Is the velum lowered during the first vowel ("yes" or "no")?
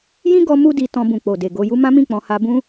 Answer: yes